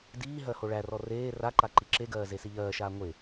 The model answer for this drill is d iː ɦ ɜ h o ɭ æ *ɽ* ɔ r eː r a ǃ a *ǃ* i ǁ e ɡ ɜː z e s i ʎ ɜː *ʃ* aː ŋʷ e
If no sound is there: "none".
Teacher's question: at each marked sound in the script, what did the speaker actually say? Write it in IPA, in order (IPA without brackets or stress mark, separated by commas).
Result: r, ǃ, ʃ